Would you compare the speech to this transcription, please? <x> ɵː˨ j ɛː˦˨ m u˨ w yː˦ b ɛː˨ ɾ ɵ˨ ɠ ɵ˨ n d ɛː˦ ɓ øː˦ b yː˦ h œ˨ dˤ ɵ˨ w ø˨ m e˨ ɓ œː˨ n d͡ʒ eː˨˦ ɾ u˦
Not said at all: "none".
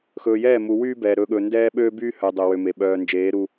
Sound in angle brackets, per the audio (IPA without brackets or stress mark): x